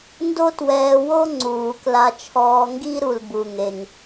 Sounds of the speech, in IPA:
n d o˥ t w ɛː˧ w o˥ ŋ͡ǀ uː˩ k l a˧ t͡ʃʰ ɔː˧ ŋ ɡ i˥ ɾ u˩ l b u˩ ŋ e˩ ŋ

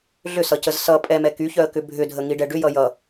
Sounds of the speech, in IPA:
ɮ ʏ s ʌ c ə z s ʌ pʼ ɛ m ɛ k y ç œ ə̯ k ʏ bʱ ʏ dʱ ə ŋ i ɖ ɛ ɖ ʏ j ʌ j ʌ

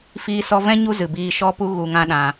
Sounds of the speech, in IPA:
f iː˧ s ɔ˧ v ɛ̃˦ ɲ u˦ z ɨ˨ b iː˧ ʃ ɔ˦ p u˦ ɣ u˧ ŋ ã˦ ɗ ã˧

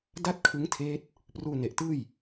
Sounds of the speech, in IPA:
d a˥˩ t̚ kʰ ɯ˦˥ ŋ tʰ eː˦˥ t̚ | p r uː˧ n e˨˩ ʔ t ɯː˥˩ j

